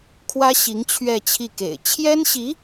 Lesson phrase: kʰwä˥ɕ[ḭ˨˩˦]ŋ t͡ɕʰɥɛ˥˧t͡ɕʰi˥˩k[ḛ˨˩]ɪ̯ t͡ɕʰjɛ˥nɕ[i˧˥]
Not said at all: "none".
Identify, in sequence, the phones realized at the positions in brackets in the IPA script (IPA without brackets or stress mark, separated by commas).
i˧˥, ḛ˨˩, i˧˥